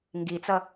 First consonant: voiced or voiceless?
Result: voiced